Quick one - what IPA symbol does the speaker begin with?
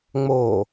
ŋ͡m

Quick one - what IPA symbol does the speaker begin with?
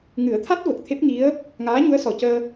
ŋ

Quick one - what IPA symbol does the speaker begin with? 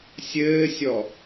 sʲ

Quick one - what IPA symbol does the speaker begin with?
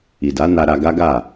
i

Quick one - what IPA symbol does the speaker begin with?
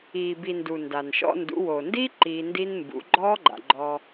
iː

